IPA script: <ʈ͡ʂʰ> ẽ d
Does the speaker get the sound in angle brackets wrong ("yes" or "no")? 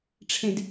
no